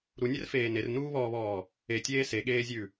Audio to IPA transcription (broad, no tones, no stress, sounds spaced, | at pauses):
ɾ u nʲ ɛ r f eː n e r n uː β ɔː β ɔː | e tʲ eː s e ɠ eː zʲ ʉ